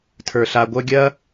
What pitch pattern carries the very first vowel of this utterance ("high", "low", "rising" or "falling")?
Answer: low